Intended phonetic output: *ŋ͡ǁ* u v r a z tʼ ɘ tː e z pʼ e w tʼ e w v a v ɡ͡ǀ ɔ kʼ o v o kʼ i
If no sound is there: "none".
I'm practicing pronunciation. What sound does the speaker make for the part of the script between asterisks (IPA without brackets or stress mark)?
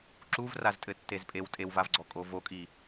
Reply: ǁ